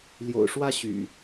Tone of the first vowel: low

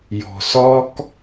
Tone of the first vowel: low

